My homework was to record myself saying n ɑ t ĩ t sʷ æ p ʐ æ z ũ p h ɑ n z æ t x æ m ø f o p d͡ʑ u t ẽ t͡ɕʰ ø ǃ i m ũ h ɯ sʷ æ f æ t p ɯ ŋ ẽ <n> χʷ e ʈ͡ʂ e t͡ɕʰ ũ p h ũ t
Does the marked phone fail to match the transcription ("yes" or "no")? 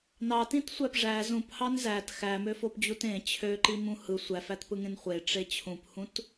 no